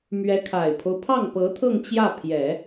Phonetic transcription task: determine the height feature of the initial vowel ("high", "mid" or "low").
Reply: mid